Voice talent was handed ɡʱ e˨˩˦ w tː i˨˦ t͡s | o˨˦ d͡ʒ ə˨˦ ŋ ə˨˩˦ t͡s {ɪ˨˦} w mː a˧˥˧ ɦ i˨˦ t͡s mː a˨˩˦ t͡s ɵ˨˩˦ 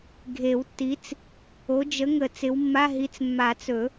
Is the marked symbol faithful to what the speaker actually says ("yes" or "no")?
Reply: yes